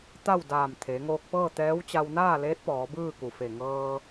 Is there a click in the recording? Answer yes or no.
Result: no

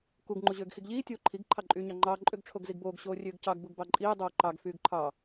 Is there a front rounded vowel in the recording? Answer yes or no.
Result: yes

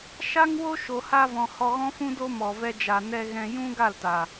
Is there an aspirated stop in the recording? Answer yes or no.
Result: no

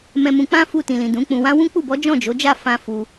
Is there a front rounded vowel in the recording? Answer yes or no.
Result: no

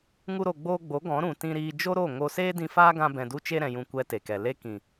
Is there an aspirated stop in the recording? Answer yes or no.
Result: no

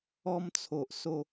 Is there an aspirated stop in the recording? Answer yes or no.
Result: yes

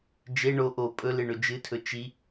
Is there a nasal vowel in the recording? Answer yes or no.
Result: no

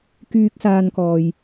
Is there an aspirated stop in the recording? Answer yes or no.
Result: no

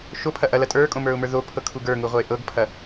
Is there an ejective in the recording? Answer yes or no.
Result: yes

